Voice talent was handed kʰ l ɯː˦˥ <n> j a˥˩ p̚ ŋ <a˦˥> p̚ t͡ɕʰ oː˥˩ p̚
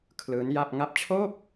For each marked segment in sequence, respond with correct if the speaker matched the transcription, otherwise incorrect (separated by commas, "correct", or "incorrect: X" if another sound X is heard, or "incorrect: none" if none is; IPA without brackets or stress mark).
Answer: correct, correct